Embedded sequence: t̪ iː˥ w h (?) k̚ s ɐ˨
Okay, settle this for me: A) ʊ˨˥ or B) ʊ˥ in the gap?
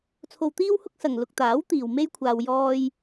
B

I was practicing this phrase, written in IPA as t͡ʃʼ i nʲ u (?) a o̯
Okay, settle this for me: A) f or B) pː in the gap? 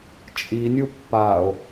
B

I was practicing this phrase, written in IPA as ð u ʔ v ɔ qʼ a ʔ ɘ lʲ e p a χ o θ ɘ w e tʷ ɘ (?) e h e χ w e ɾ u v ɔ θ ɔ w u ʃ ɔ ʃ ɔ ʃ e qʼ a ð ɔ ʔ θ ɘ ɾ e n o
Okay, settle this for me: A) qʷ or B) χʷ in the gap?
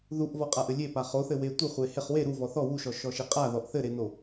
B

